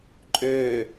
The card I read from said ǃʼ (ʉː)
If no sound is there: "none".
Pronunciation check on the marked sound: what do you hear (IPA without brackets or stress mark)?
øː